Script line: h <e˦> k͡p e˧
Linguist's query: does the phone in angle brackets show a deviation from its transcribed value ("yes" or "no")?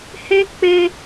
no